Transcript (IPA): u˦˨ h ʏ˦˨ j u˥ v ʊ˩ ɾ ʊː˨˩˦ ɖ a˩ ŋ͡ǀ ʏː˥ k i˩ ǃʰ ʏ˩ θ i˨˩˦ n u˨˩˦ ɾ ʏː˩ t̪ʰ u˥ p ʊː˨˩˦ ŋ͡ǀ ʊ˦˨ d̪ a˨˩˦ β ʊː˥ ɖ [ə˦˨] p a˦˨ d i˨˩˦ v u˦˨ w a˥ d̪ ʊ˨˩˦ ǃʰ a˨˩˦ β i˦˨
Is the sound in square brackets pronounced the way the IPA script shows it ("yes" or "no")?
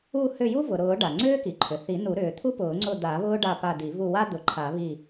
no